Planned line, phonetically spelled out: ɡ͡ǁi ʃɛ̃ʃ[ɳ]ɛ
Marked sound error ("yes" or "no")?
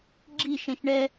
no